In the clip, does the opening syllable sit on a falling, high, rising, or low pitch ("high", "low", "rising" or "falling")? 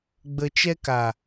low